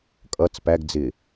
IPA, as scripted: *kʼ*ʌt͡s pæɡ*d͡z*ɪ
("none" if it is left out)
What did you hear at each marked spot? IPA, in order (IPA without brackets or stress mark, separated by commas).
kʼ, d͡z